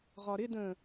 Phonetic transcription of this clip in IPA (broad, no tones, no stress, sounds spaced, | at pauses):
ʁ ɒ ɾ ɪ d ə̃